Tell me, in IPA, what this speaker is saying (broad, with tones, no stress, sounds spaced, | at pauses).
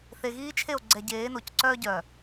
θ e˨ ɣ iː˦ t͡ʃʰ e˦˨ o̯ ɡ͡ǀ ɛ˨ ɟ eː˨˦ n o˨ c ǀ œː˦ ɟ œ˨